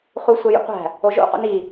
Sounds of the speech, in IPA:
χ u sʷ e j o̰ qʷ æ̤ | o ʒ o̰ q o̰ n i

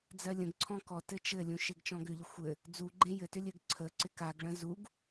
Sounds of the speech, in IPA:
d͡z ɜ lʲ ə̃ ɡ ǀʰ ɔ̃ k ɔ t ɘ t͡ʃ ɘ lʲ ũ ʃ e ɡ t͡ʃ ɔ̃ ɡ ʏ ʎ ə xʷ ɘ | d͡z u ɡ͡ǃ ẽ j ɘ t ʏ lʲ ɘ ɡ ǀʰ ə ǀ ɪ k a ɡ ɭ ə̃ z u ɡ

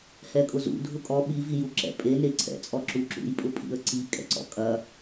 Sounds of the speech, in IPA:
h ɛ kʼ ʊ z ṵ dʱ ʊ kʼ ɔ ɓ i v i j u ǁ ɛ̰ pʼ e n e ǀʰ ɛ̰ t͡sʼ ɔ ǁ u ǁ ṵ j pʼ ʊ pʼ ḭ ə̯ ǀ i kʼ ɛ̰ ǀ ɔ̰ kʼ ɐ

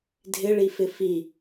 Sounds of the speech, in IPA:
dʱ ɪ ɭ i f ɪ f i

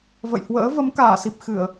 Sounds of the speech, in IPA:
v ə̰˧˨ j h w ə̰ː˧˥ v ə˨˦ m k aː˧˩ s i˨˩ p̚ x ɨ˧˩˨ ə̯

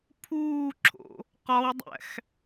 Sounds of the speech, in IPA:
pʰ uː ǁʰ o̰ | q ɒ w dˤ æ̰ x

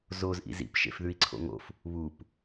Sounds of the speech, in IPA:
z o z ʔ ḭ z ḭ p ʃ ḛ f ð ʉ i̯ ǀʰ o̰ ŋ o̰ f | β u p

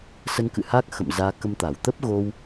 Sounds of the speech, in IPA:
s ə˧ n k ɨ̰˧˨ h a˦˥ k̚ x ə̰˧˨ m z aː˨˦ k ə˧ m t̪ a˧˩ w t̪ ə˦˥ p̚ ɣ o˧ w

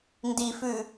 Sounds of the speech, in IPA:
n d i f ʉ

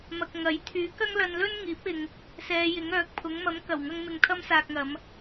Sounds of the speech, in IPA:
m ɐ˨ k̚ ŋ ɐ˨˥ j t̪ʰ yː˨˥ k ɐ˥ ŋ l ɐ˧ n l ɵ˥ n ŋ iː˨˥ p̚ ɪ˨ ŋ | s ɛː˨˧ j ɪ˨˥ ŋ œː˨˥ k̚ pʰ ʊ˨˥ ŋ m ɐ˨˥ m k ɐ˨˩ w ŋ ɐ˧ ŋ m ɪ˧ ŋ t̪ʰ ɐ˥ m s aː˧ k̚ ŋ ɐ˨˧ m

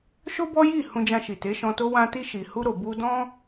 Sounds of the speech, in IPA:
ʃ o˦ b ɔ˦ j i˦˨ h ũ˧ d͡ʒ ã˧ ʃ i˨ t e˨˦ ʃ ɔ̃˧ t o˦ w ã˦ t i˧ ʃ i˨ h u˧ ɾ o˨ b u˧ d ɔ̃˧

